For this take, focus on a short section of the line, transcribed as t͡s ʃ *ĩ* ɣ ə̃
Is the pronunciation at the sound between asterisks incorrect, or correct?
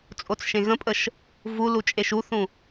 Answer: incorrect